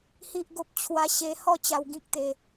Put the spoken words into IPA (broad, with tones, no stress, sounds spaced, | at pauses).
h i˦ ʔ ɡ o˦ p̚ t͡ɕʰ w a˦ ɕ e˧ h ɔ˥˧ t͡ɕ a˧ w ɡ ĩ˦ k̚ t̪ e˧